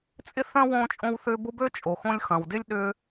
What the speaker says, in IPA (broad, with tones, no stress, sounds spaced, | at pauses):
t͡sʼ ɪ˦ θ œ̃˦ w õː˧ t͡ʃʼ õ˧ w θ ʏː˧ b ʊ˦ b ø˦ t͡ʃʼ o˨ x õ˧ lʲ x ɐ̃˨ w d ɪ˦ lʲ ɗ ʏː˧